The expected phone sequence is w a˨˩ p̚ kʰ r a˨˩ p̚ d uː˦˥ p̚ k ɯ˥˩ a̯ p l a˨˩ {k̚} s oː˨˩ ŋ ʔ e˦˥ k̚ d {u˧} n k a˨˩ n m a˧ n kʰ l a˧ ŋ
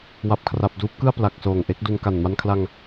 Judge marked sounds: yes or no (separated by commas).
yes, yes